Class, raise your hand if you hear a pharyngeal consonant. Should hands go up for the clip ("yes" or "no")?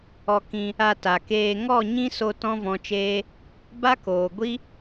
no